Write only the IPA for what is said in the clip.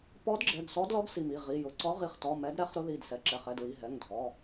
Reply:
p ɔ˧˥ d ɡ͡ǁ ɛ˩˧˩ ɡ s ɔ˧˥ d l ɔ˧˥ ɡ s i˩˧˩ m i˩˧˩ ʁ i˩˧˩ j ʊ˩˧˩ ǀ ɔ˧˥ ʁ i˩˧˩ χ t ɔ˩˧˩ m ɛ˧˥ d ɾ ɛ˧˥ χ ɾ ʊ˧˥ ð i˩˧˩ d s ɛ˩˧˩ ǁ ɛ˩˧˩ χ ɛ˩˧˩ d ɹ i˩˧˩ ɦ ɛ˩˧˩ ŋ dʱ ɔ˩˧˩

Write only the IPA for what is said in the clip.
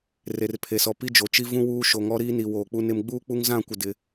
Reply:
r e˨ r pʰ e˨ s ɔ˨ p i˦ d͡ʒ o˨ t͡ʃ i˦ v ũ˦ w uː˦ ʃ o˨ ŋ ɔ˦ ɾ iː˦ n i˨ w oː˨ k͡p u˦ n ɪ˦ m ɡ͡b uː˦ k͡p u˦ ŋ z ã˦˨ kʷ ɪ˨ d ɪ˦

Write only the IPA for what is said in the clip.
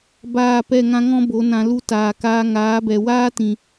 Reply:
b aː˦˨ p ɛ˦˨ ŋ ã˦ ŋ ɔ̃˦ b o˨˦ n ã˧ l u˦ t aː˨ k aː˧ ŋ aː˨˦ b ɛ˨ w aː˦ t ĩ˨

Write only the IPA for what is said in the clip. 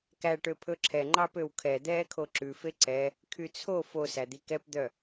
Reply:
k æ ʈ ø pʰ ɵ ǁʰ ɛ ŋ͡ǃ ɑ p ø w kʰ ɛ d̪ ɛː kʰ o ǁ ʉ f e ǀ ɛ | kʰ y t͡sʰ o f o s æ d̪ i k ɛ p d̪ œ

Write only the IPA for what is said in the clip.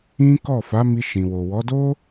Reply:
ĩ˦ k ɔ˦˨ f a˨˦ m i˧ ʃ ĩ˨ w o˨ w ɔ˨˦ d o˦

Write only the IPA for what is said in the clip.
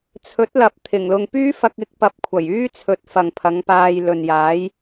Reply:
t͡sʰ ɵ˨˥ t̚ l ɐ˨ p̚ t̪ʰ ɪ˨˩ ŋ l ʊ˧ ŋ p yː˥ f ɐ˧ k̚ ɪ˨˥ k̚ p ɐ˨ p̚ kʷʰ ɐ˨˩ j yː˥ t͡sʰ ɵ˨˥ t̚ f ɐ˨ ŋ pʰ ɐ˨˧ ŋ p aː˧ j l ɵ˨ n j aː˨˥ j

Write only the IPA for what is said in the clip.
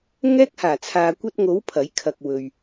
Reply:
ŋ ɛː˥ k̚ h aː˨˩ t͡sʰ aː˨ kʷ ɐ˧ t̚ ŋ o˨˥ w pʰ ɐ˨˥ j kʰ ɐ˨ k̚ w ɵ˨ ɥ

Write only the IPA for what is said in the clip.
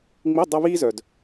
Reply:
ŋ͡m i˧˥˧ dˤ o˥ β iː˥ z œ˨ d

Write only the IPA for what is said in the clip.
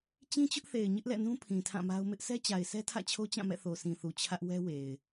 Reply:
t͡ɕ ĩ˦ t͡ɕ ʊ˦ ʔ θ e˨ ɪ̯ ɲ ɪ˦ ʔ l ɛ̰˦˨ n ũ˦ pʰ ĩ˨ tʰ ã˦˨ m a˦ ʊ̯ m ɪ˦ ʔ sʰ ɛ˦ t͡ɕ a˨ ɪ̯ sʰ ɛ˦ tʰ ä̰˦˨ t͡ɕʰ o˦ t͡ɕ ã˦˨ m ɛ̰˦˨ θ o˨ s ĩ˨ θ u˨ t͡ɕʰ ä˦ ʔ w ɛ˦ w e˨ ɪ̯

